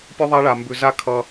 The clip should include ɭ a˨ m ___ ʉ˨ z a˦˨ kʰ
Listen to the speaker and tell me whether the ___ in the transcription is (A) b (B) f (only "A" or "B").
A